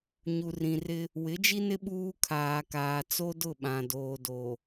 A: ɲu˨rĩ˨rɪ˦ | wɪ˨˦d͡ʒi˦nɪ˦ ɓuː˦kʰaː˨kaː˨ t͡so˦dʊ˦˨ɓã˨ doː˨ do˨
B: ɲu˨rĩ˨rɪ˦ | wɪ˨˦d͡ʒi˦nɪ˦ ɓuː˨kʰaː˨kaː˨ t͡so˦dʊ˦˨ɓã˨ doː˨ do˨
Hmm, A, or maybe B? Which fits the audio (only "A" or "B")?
A